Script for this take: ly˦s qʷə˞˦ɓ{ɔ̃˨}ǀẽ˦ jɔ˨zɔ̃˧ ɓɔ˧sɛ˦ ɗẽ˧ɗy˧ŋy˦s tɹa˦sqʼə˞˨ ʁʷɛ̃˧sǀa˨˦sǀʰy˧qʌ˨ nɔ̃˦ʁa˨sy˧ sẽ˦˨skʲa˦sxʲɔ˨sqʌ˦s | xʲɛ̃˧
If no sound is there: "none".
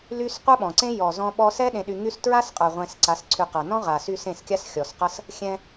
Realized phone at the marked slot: ɔ̃˨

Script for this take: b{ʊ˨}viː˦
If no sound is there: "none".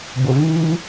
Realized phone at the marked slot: ʊ˨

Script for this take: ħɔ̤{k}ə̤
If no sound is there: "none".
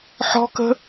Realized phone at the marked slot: k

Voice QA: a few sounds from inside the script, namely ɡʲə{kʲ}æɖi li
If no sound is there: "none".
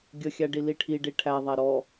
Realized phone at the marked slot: xʲ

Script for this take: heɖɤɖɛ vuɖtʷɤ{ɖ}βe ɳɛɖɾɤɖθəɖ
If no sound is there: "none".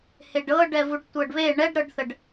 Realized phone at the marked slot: ɖ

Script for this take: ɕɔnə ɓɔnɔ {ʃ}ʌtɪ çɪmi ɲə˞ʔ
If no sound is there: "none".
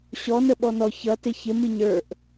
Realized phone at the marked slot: ç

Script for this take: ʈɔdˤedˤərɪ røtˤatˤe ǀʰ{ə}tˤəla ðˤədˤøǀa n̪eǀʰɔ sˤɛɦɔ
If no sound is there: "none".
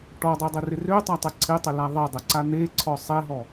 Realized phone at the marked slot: ɪ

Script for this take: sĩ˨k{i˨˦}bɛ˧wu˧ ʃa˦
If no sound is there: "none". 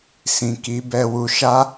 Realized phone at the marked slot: i˨˦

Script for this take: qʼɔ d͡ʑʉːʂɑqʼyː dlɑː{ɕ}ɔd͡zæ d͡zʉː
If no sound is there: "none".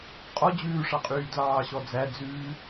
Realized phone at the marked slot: ɕ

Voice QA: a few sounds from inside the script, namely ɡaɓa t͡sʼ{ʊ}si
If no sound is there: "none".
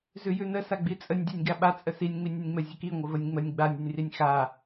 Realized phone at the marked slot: ə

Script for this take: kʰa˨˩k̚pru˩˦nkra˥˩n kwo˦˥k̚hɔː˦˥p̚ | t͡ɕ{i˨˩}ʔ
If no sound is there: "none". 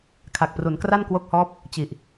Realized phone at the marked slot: i˨˩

